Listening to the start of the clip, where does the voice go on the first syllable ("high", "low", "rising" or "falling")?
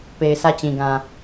low